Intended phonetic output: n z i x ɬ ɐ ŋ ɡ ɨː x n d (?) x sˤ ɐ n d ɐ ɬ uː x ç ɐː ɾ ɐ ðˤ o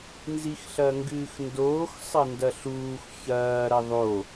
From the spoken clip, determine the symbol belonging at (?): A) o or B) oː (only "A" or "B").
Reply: B